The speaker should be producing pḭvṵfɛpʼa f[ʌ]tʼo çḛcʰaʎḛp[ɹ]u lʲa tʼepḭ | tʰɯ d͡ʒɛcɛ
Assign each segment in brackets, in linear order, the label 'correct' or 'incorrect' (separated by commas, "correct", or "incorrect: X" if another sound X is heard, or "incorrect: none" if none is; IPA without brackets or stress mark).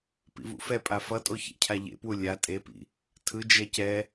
correct, incorrect: w